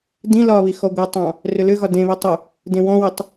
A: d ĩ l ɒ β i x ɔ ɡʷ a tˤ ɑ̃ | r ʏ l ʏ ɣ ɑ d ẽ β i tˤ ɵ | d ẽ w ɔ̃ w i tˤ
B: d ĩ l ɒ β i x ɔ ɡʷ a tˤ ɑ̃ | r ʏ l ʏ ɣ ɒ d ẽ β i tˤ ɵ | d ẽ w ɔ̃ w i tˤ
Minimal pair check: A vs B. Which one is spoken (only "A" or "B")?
B